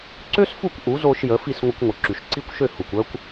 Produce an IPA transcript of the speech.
ǀø˥sfu˥˩kʷ ʔu˩˥zo˧ʃ jə˩˥fi˥˩s ŋʷə˧kʷŋʷə˩ ǁy˩ʃǀi˥˩kʷʃø˥˩ hu˩kʷœ˥kʷ

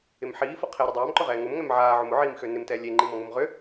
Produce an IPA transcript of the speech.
ɪmħiːfʊ qʰeɾʊ dˤaːmǃʊʁɛː ŋʊmŋɛm ʕaːʕʊm ʊʕiːmxø nɪmtɛː lʲeŋ͡ǃimɔŋʊm ʁʏ

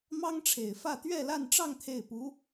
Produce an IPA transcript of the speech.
mɑ˥ŋʈ͡ʂʰe˨˩ɪ̯fä˥˧ t̪ɥɛ˥˧la˥˧nʈ͡ʂɑ˥˧ŋ t̪ʰe˥˩ɪ̯pu˧˥

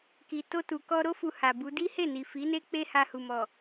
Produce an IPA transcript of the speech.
ki˨ to˧tu˨kɔ˧ɾo˦ fu˧ha˨bu˨˦ di˦he˦˨ni˨ fi˨˦ne˦ k͡pe˦ha˧hu˨mɔ˨

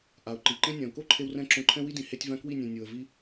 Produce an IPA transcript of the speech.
ʔa˨ʊ̯ǃi˨ǃẽ˦ nʲã˨ʊ̯ko˦ǃʰe˧wrɛ̃˧ ǁõ˧ǃʰɛ̃˦wi˦dĩ˨ he˧tʲvã˧ kwi˦˨nʲẽ˨ nʲo˨ə̯ vi˧

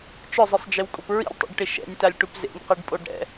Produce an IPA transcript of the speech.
t͡ʃʊzˤɪsˤd͡ʒɪwkʼʊp ɹḭlʲtˤḭɖʈɪ ʃɛ̰nʲtalʲʈup zḛnʲqiɖpʼoɖ ɾɛ̰

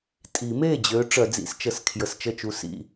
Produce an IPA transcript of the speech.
tʼi˨˩˦me˥˩d͡ʑø˨˦ ʈ͡ʂœ˨˩˦d͡zḭ˨˩˦st͡ʃə˨˩s kʰjə˨˩st͡ʃə˥˩t͡ʃu˨˦ sḭ˥˩

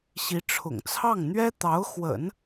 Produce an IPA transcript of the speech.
ɕi˧˥ʈ͡ʂʰʊ̰˨˩ŋt͡sʰɑ˥˩ŋ n̪ɥɛ˥t̪ɑ˧˥ʊ̯xwə̰˨˩˦n

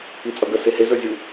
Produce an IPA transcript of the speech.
it͡sʼʌɡə sehe zə˞zʲu

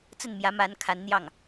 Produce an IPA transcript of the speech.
t͡sə˥˩nmjä˧˥ ma˧˥nkʰa˧˥nn̪jɑ˥˩ŋ

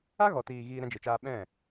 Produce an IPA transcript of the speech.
a˦ ɣɔ˨tiː˨ ɣiː˧ɾɛ̃˧d͡ʒe˨t͡ʃaː˧ ɓɛ̃˦˨

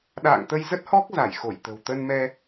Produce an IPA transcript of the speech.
ɗa̰ː˧˨ŋt̪ə˧jzə˦˥t̚hɔ˦˥k̚ za˧˩jxo˧˩jt̪ə̤˨˩w t̪ə˧nmɛ˧

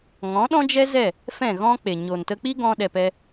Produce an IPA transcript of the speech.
ŋɔ̃˨˦ɗɔ̃˦d͡ʒɛ˦ zɛ˦˨ | fɛ̃˦˨ɣɔ̃˦k͡pe˨ ɲo˨ntə˧k͡pi˦ ɡɔ̃˦ ɗɛ˧pɛ˦

